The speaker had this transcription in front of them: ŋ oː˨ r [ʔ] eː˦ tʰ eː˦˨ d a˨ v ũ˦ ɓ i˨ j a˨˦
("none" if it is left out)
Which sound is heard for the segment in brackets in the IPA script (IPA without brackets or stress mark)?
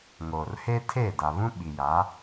h